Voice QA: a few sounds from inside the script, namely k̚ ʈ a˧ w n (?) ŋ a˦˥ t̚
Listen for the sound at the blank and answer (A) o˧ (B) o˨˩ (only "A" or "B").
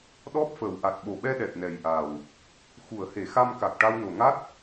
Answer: B